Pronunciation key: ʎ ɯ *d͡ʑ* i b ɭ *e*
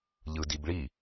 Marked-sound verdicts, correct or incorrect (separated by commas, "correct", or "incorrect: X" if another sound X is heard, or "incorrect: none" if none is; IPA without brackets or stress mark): incorrect: d, incorrect: i